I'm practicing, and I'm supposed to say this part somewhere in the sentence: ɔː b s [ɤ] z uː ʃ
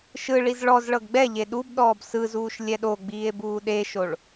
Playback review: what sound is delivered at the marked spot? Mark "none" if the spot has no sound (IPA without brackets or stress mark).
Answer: ɯ